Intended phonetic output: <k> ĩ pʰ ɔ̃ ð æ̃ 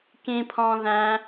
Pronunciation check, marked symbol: correct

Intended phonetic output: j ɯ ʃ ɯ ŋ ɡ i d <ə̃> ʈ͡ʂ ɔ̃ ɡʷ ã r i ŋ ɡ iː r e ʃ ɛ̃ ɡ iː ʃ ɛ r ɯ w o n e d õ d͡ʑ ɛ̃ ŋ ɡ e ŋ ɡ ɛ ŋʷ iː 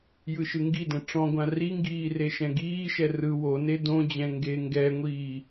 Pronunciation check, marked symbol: incorrect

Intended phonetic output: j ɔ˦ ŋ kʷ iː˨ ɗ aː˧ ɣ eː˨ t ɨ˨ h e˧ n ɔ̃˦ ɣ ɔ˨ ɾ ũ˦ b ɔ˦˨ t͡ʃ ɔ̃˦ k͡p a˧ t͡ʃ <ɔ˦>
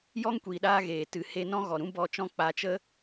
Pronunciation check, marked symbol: incorrect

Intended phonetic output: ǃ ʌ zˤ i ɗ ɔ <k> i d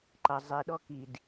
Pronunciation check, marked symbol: correct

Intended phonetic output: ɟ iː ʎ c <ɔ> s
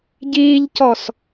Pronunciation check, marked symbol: correct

